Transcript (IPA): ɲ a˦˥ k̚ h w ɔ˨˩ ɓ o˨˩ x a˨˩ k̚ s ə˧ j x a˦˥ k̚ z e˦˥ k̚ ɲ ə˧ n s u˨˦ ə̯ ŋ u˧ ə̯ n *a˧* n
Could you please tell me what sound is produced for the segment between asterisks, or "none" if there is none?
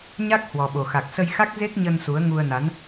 a˨˦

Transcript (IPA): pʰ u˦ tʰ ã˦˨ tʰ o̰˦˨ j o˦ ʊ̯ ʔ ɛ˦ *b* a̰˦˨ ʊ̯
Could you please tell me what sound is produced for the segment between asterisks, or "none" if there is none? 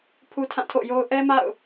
m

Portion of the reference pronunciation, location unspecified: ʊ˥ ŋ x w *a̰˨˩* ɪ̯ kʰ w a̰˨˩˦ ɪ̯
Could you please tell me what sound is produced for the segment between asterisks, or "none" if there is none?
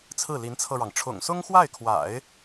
a˥˩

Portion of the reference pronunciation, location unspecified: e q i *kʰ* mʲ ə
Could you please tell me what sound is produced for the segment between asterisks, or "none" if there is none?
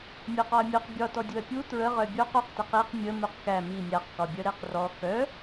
q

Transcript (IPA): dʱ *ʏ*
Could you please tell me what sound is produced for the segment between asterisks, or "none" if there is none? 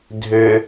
ʏ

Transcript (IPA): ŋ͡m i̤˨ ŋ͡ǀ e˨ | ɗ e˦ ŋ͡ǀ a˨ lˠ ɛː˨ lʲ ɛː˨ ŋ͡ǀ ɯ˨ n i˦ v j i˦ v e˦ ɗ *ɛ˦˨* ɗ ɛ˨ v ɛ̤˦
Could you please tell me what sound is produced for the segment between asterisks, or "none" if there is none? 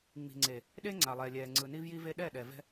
ɛ˦˨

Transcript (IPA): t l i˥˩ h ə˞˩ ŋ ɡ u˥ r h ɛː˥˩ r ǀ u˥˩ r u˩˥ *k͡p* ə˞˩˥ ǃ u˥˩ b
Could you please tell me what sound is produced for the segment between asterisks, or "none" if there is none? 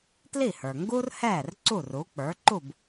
k͡p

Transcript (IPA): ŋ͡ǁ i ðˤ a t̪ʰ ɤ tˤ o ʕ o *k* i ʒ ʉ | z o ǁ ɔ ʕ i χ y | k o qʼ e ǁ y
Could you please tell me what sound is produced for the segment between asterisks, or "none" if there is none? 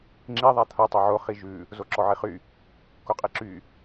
χ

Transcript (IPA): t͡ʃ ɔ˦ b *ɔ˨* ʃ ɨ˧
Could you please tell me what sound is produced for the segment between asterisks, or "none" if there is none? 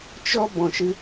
ɔ̃˨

